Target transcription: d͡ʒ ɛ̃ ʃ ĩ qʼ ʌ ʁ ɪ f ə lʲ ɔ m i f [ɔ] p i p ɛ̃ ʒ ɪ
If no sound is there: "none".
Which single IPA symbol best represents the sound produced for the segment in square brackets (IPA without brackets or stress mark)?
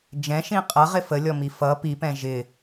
ʌ